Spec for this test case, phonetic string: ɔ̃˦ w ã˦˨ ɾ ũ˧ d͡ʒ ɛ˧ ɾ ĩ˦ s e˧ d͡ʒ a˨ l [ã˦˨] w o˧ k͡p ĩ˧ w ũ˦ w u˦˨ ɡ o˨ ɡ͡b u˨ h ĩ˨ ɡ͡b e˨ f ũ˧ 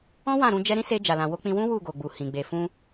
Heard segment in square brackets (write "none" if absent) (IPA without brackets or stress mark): ã˨